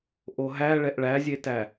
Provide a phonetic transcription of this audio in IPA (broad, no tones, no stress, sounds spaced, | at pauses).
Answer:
ʔ o ɦ æ ɭ ɛ ʔ ɭ æ zʲ e t æ